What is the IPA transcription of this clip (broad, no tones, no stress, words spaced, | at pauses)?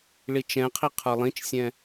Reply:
ɭit͡ʃɛ̃qʰi qʰə˞lˠĩt͡ʃsʲɛ̃